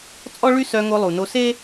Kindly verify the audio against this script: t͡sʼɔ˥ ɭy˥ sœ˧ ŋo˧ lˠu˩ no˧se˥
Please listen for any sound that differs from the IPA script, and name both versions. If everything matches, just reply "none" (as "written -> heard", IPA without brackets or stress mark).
none